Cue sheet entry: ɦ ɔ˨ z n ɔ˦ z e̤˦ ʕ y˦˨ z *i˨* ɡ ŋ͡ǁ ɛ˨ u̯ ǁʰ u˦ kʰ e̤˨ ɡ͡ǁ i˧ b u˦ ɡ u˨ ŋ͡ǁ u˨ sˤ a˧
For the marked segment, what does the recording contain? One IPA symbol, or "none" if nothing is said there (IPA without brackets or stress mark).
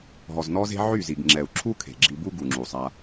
i˨